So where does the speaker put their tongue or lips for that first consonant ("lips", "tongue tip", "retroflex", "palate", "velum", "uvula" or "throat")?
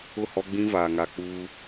throat